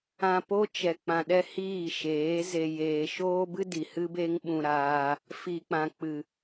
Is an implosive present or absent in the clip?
present